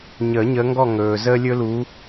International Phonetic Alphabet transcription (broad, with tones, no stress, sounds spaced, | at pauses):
ɲ əː˨˩˦ ɲ əː˨˦ ŋ ɡ ɔ˥˨ ŋ ɵː˩ z əː˦ lʲ ɵ˦ l uː˨˦